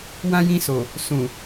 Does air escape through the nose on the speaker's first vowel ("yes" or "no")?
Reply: yes